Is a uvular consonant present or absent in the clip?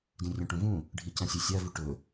absent